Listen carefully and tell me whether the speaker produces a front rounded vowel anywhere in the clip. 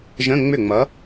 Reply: yes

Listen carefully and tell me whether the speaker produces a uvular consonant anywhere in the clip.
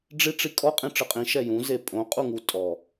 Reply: yes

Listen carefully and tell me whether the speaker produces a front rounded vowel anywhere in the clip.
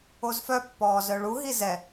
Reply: yes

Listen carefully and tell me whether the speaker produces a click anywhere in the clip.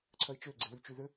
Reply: yes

